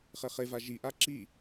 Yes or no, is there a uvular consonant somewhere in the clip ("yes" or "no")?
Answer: yes